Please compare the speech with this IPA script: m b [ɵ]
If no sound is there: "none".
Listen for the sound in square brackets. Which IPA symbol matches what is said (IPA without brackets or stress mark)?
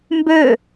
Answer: ø